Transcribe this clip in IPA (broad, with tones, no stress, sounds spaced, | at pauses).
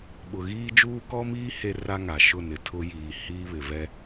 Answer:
ɓ ʊ˨ ɣ iː˦ d͡ʒ uː˦ k ɔ˦ m iː˦ h e˦ r a˦ ŋ a˨ ʃ ʊ˦˨ n ɪ˨ tʰ ʊ˦ j iː˨ h iː˦ β ɪ˨ v ɛ˦